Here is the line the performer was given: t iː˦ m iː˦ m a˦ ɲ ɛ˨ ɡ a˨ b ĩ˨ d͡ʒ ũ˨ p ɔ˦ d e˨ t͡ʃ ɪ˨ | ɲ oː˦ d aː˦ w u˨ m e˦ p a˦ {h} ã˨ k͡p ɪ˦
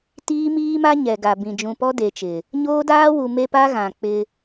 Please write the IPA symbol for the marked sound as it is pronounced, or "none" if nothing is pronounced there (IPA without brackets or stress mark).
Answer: ɣ